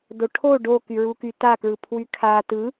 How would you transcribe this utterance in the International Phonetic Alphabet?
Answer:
d o ʈʰ o ɖ o k y ɹ u k y t a k ɹ ɯ pʰ w y kʰ a t ɯ

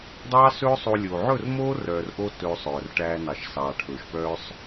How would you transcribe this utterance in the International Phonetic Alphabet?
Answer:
dˤ ɑː˦ s ɵː˦ sˤ o˧ lʲ oː˨ ʕ ɵ˦˨ r m oː˦ r œː˨ r ʔ o˧ t ɵː˧ sˤ œː˨ r ʈ æː˧ n ɑ˨ ʃ s ɑː˨ ʈʰ ɵː˨ ʃ p œː˦ sˤ

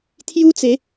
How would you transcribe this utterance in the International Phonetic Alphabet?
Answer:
t̪ʰ j u˦ t͡s e˨˦

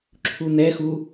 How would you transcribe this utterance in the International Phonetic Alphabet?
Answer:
ǁʰ u n̪ ɛ x u

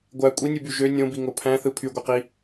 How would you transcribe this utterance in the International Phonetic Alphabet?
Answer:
ɡʷ æ kʷʼ i nʲ ɯ b y ʒ ø nʲ õ b i ŋ o pʰ æ̃ θ ɯ pʰ y ɡʷ e q i

